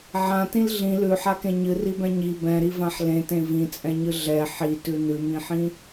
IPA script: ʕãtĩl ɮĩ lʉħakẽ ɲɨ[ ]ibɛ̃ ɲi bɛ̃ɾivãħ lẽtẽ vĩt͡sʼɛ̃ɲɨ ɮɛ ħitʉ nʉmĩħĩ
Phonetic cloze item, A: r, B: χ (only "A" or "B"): A